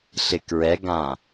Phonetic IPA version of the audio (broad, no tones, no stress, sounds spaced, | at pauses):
ɬ ɪ k ɹ ɛ ɡ ã